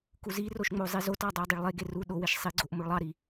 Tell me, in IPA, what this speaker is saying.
kuziroʃ ŋ͡mozˤizotɑ dˤodˤiɭlˠeɡe ru ɗoweʃ sˤiɡ͡ǀoʔ moɭlˠɑɾi

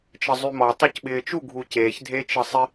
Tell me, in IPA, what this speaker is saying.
t͡ʃəzˤymɔ tˤocɓɪːt͡ʃu ɡʱuceːç dʱet͡ʃəsˤɪ

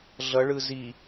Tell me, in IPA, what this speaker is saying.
ɮʌɭɯ zi

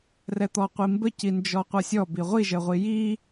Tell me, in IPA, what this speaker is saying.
rɛt̪ɔqʷimbə cind͡ʒɔqʷʌsʲɔ biʁʷiʒəʁʷi ji

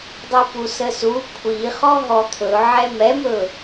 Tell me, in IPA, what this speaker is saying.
dˤipusəsu kʷʰi χɔɦɔt̪ʰɵʕɛ mɛmɵ

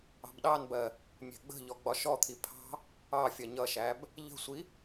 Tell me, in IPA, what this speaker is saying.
ɑ̤bɗɑnbɜ | mʲɛ̤ɡ͡bə̤ʎɔ ɡ͡bɒʃɔt̪ʰi pʰɑ̤ | ɑ fʲɜɲʌʃæb | ʎə̤sʷi

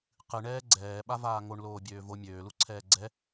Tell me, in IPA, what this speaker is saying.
qɨɳɛː ɡ͡ǀɛːɓavaː ŋoɳloːbʲøː vo mʲøːluǀʰɛː ɡ͡ǀɛ

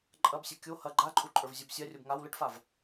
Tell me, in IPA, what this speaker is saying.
ǃʼɐbsʲɐ kʲo hɐ ɡ͡ǃaǃʼuǃʼə˞vzʲob sʲarʲob ŋaw ləʈfav

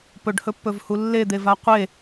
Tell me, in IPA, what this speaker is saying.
pɵɖhɵpːɵvhu lːed̪eva qʷe

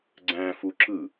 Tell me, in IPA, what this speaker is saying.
ɡ͡ǀæ̃ fuǁɯ

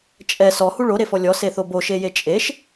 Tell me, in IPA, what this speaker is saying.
t͡ʃʼɛ sɔhu ɭoɾefɔ lʲɔseθo boʃeje t͡ʃʼeʃ

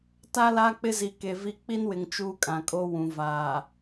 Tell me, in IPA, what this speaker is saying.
ta˦la˦ k͡pɪ˦zi˨ke˨vi˦ k͡pi˦nwɪ˨ŋ t͡ʃuː˦kʼã˨kʼo˦ wũ˨ vaː˨

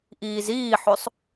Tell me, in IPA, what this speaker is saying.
ʔiːziːħøsˤ

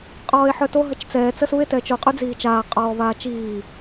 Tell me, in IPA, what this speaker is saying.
qʼɔːe̯ħœto ɦət͡ʃt͡sɛː t͡səsue̯ tɛːt͡ʃo qʼyd͡ziːt͡ʃaː qʼɔːvaːt͡ʃiː

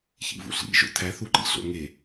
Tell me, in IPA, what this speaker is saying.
çḭvṵɬḭ ʒo̰tʰæ θuǃḭ ɬo̰ŋe

